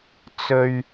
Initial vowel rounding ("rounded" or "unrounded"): rounded